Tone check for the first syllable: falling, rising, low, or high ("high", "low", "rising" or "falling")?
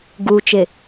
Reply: low